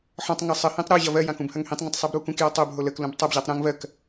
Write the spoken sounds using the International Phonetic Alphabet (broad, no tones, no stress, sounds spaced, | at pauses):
ħ ɔ̃ tˤ ŋ ɐ sˤ ə h ĩ tˤ ɾ o ʑ ɐ v ɜ j ã k ũ b h ɐ ŋ h ĩ tˤ ŋ ə̃ tˤ sˤ i b ɾ u k ũ k j ɔ tˤ o b ɦ o l ə k l ũ b tˤ ɐ b ʑ a tˤ ɾ ũ ŋ v ɜ k